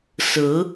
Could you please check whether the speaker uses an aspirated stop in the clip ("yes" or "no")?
no